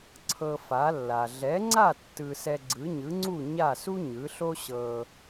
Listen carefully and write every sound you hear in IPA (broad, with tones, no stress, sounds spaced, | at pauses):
ǀʰ ɤ˧ f a˩˥ lː a˩ ɮ ɛ˩˥ ŋ͡ǀ a˥˩ tː ɯ˧ s ɛ˧ ɡ͡ǀ ɯ˩˥ ɲ ɯ˩˥ ŋ͡ǀ u˥˩ ɲ a˥˩ s u˥ ɲ ɯ˩˥ ɬ o˥ ɕ ɤ˧